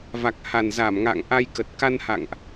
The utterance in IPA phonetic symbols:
v a˨˩ k̚ h a˨˩ n z a˧˩ m ŋ a̰˧˨ ŋ ʔ a˧ j k ə˨˩ t̚ k a˧ n h a̰˧˨ ŋ ʔ

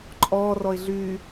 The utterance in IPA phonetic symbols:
ǃʼ ɔː r ɔ ɪ̯ ɮ yː

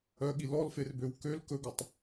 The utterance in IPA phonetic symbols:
œ ɠ i l ɔ l f e r b ø w k ø l k ɵ ɡ ɵ tˤ

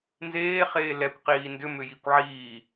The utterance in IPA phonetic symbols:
n z eː χ eː l ɛ kʷ q iː n d ʏ m ʏ j i kʷ ʕ iː

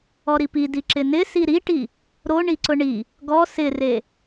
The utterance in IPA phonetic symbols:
ɔ ɾ i p i d i ǁ ɪ n ɪ s i ɾ i ʈ i | ɾ o ɳ i ǀ ʊ ɳ i | ɡ ɔ s ɪ r e

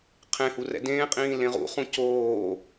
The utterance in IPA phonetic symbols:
qʰ ẽ h u r ɛ̰ d ẽː qʼ ĩː l ẽ ʁ ṵ χ ũ c oː

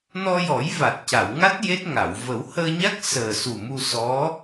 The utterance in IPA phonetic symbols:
n ɔ˧ j ɔ˨˩˦ j v a˨˩ t̚ c a˨˩˨ w ŋ a˦˥ t̚ j e˦˥ t̚ ŋ a˨˩˨ w v ə˨˩˦ w h əː˧ ɲ a˦˥ k̚ s əː˨˩ s u˨˩ m u˧ s ɔ˧˥

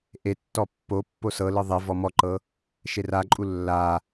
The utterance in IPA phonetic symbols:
ʔ e tː ɔ pː o pː o s ɤ l ɯ ðˤ e v ɔ m ɔ ǃ ɤ | ʃ e r a ǃʼ u lː a

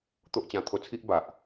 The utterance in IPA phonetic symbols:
t̪ o˦ ʔ t͡ɕ ã˧ t̪ʰ o˧ t͡sʰ i˦ ʔ b a˨ ʔ

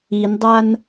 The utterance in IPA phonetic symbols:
i n dˤ a n

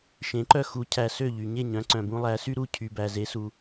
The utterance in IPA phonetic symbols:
ʃ ẽ˩˥ ǃ œ˥˩ x u˩˥ cʰ æ˩ s ø˥˩ ʎ y˩ ɲ e˥˩ ɲ œ̃˩˥ ǀ œ̃˩ b ũ˧ lˠ æ˩˥ s y˥ ɾ u˥˩ cʰ y˩ b æ˩ z e˩˥ s u˩

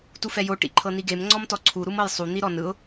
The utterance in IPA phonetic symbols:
t u f ɛ j o ʈ ḭ ǃʰ ɤ n i ɡ e m ŋ͡ǀ ɔ m t ɔ ǀʰ u ɾ u m ɤ j sˤ u n̪ i ɾ ɔ n ɯ ʊ̯

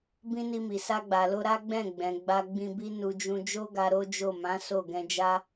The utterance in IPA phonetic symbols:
b ĩ˦ n i˧ m i˨ s a˧ ɡ͡b a˨ l o˧ ɾ a˦ ɡ͡b ɛ̃˦˨ ɡ͡b ɛ̃˨ ɡ͡b a˧ ɡ͡b ĩ˧ b i˦ n u˧ d͡ʒ ũ˧ d͡ʒ o˦ ɡ a˧ ɾ o˦ d͡ʒ o˦˨ m ã˨˦ s o˦˨ ɡ ɛ̃˧ d͡ʒ a˦

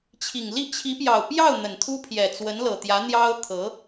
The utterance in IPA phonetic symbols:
t͡ɕʰ i˨˩ ŋ l i˥˩ t͡ɕʰ i˧˥ p j ɑ˨˩ ʊ̯ p j ɑ˥˩ ʊ̯ n̪ ə˨˩ n t̪ʰ u˥ pʰ j ɛ˨˩ t͡s w ə˧˥ n l ɤ˨˩ t̪ j ä˧˥ n̪ j ɑ˥ ʊ̯ t̪ʰ ɤ˧˥

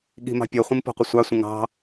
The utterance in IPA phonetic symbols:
ɠ i̤ m ɑ̤ pʲ ɔ χʷ ĩ m p ɔ̤ qʷ ɪ sʷ ɑ sʷ ə̃ ŋ ɑ̤

